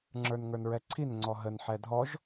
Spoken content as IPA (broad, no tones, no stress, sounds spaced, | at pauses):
ŋ͡ǁ ə˞ n ŋ ə˞ n ɹ ɛ ǀʰ i n ŋ͡ǀ ɔ ɦ ə n ħ ɛ dʱ ɔ ʒ